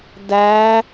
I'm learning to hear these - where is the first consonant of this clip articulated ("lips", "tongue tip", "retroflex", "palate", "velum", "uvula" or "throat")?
tongue tip